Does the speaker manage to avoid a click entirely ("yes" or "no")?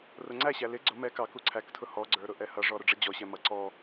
no